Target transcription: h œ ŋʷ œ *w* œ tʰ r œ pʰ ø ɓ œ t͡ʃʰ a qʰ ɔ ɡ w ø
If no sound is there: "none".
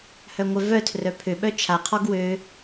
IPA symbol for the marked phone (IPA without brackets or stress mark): v